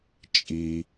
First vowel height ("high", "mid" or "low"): high